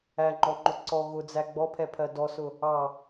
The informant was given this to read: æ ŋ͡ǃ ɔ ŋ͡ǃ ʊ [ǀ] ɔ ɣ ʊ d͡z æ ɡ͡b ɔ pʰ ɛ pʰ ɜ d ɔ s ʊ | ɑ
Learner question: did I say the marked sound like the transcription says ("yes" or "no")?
yes